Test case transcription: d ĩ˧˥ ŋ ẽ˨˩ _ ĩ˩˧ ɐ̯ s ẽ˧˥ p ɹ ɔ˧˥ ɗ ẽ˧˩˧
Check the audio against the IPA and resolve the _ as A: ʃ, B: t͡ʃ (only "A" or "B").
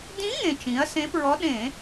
B